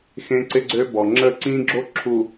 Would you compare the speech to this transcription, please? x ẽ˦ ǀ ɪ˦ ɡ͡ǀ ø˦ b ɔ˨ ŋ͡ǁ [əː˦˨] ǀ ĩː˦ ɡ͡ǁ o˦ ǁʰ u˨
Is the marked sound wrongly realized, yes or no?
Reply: no